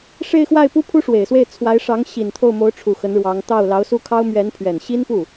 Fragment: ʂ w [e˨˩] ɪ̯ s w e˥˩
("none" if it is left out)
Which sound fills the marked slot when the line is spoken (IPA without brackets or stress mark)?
e˨˩